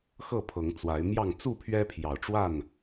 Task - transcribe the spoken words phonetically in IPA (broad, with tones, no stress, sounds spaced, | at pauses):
x ɤ˥˨ pʰ ɤ˨˦ ŋ t͡s w a˨˦ ɪ̯ m j ɑ˥˨ ŋ t͡s u˥˨ pʰ ɥ ɛ˦ pʰ j ɑ˨˩ ʊ̯ ʈ͡ʂ w a˥˨ n